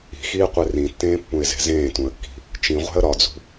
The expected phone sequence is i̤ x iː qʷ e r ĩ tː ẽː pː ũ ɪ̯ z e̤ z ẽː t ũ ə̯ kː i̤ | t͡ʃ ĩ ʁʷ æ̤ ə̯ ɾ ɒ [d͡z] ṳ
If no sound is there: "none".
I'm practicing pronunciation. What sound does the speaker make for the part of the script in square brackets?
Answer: d͡z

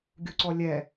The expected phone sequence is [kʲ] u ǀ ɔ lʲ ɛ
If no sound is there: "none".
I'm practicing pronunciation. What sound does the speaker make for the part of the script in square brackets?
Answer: ɡʲ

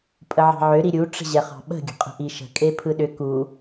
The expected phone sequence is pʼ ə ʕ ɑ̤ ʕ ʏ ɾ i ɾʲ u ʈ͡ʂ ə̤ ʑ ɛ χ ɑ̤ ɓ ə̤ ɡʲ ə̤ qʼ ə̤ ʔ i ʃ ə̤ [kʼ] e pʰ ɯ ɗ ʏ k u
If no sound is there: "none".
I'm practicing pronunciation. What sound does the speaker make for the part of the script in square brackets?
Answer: kʼ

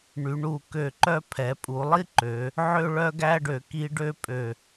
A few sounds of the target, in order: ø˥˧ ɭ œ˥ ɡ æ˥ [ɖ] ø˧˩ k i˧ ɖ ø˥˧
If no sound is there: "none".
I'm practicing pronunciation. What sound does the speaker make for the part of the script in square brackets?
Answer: ɖ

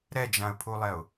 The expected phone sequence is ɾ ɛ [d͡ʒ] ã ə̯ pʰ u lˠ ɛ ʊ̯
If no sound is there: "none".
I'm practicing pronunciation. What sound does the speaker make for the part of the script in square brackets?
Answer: d͡ʒ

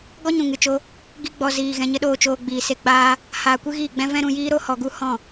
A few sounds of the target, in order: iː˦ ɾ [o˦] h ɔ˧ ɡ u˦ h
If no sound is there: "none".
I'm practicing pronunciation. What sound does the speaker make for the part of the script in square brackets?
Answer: o˦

